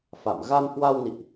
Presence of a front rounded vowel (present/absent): absent